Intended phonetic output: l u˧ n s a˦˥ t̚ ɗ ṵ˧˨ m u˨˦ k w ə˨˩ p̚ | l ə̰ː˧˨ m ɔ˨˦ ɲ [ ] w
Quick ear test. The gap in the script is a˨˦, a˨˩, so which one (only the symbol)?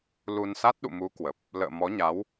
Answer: a˨˦